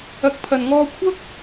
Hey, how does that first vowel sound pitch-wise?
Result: rising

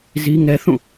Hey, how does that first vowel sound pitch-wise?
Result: high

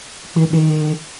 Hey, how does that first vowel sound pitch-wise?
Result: high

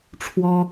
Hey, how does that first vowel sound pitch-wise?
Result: high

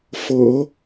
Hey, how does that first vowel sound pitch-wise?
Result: low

